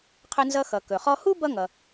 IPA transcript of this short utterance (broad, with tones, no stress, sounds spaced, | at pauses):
qʰ ɵ˧ n z ʌ˧ x ʌ˩ k ɵ˩ χ ɔ˧ h u˥ b ʌ˥ ŋ ʌ˩